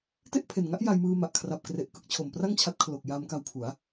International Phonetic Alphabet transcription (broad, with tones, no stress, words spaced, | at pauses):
te˥˩ʔpʰe˨˩n ŋa˦˥ʔ ja˧jmɯː˧ ma˨˩ʔ kʰra˨˩p̚kre˨˩ʔ kɯ˦˥k̚t͡ɕʰo˨˩mpra˥˩ŋt͡ɕʰa˦˥t̚ kʰlo˨˩k̚ja˧mka˧wpʰu˩˦a̯